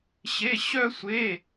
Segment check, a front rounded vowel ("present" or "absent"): present